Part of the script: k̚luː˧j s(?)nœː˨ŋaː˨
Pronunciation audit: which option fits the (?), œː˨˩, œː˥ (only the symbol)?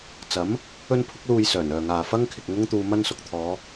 œː˨˩